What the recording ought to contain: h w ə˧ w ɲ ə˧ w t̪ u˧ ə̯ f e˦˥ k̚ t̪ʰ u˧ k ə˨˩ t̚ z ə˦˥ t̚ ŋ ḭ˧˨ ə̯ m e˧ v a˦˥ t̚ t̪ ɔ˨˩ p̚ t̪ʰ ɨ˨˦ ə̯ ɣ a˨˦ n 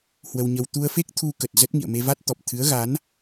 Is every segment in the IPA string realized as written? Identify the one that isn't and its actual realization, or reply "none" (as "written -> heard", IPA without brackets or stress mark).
none